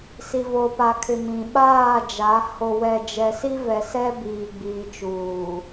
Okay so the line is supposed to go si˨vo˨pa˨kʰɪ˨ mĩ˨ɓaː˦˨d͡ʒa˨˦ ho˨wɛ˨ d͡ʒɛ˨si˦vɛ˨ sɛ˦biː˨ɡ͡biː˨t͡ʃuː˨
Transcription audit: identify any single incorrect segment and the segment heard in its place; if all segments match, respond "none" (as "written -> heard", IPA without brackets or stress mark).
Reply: none